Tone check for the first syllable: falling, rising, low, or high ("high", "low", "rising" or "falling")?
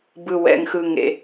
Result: low